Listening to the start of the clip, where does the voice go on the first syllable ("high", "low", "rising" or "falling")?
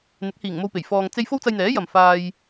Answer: rising